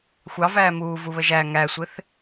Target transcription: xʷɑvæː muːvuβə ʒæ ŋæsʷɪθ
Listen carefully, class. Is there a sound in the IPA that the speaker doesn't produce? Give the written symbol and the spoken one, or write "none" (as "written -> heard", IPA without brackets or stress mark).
none